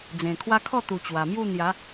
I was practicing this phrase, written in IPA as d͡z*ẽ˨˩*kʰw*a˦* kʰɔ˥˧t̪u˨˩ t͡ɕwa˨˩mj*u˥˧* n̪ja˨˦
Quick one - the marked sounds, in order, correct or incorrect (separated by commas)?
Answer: correct, correct, correct